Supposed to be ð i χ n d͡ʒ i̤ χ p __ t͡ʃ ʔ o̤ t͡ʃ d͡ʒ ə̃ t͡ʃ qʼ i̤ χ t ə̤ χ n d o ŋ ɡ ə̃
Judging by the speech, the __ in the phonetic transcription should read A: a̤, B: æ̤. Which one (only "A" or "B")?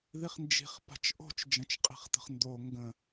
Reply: A